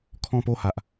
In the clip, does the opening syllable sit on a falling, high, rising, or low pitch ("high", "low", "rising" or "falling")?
falling